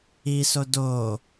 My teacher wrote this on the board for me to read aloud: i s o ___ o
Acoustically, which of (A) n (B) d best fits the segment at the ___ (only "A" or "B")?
B